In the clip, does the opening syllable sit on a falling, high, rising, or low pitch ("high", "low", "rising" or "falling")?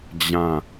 falling